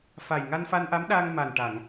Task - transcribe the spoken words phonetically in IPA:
f a˨˩ j ŋ a˧ n f a˧ n ʔ a˧˥ m ɗ aː˧ ŋ m a˨˩ n ʈ a˨˩˨ ŋ

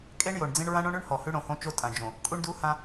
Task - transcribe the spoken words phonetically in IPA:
kʼ e˦ ɳ j o˨ ɳ d͡z ẽ˦ ɳ ɹ ã˦ ɳ õ˦ ɳ ʉ˦ ɳ h ɔ˨ h ʉ˦ ɽ õ˨ h õ˦ t͡ʃ o˦ tʼ ã˨ d͡ʒ õ˨ | kʼ u˦ ɳ d u˦ h ã˦

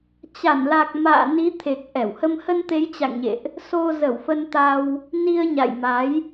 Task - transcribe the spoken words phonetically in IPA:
t͡ɕ a˧˩ n l a˨˩ k̚ m a̰ː˧˨ n i˨˦ t̪ʰ e˨˩ k̚ ʔ ɛ˧˩ w h ə˧ m h ə˧ n t̪ e˨˦ j t͡ɕ a̰˧˨ ŋ ɲ ḛ˧˨ ʔ | s o˧ z ə˧˩ w f ə˧ n t̪ a˧ w | n i˧ ə̯ ɲ a̰˧˨ j m a˨˦ j

